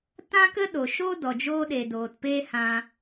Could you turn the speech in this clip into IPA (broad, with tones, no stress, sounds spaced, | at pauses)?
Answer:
t ã˦ k ə˦ ɗ o˨ ʃ o˦ d ɔ˨ d͡ʒ oː˧ ɗ e˨ d oː˨ t p eː˦ h ã˧